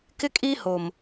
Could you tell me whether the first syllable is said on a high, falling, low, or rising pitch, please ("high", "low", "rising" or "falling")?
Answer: high